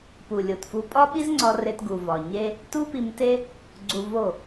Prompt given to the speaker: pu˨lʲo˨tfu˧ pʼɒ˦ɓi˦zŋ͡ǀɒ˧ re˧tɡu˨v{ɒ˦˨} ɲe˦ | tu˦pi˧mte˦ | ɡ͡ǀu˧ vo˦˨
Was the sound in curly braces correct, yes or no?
no